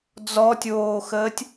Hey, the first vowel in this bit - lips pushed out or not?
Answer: yes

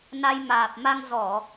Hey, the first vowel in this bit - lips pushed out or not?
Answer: no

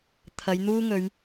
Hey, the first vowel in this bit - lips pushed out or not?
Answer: no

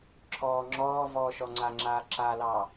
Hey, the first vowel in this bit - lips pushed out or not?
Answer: yes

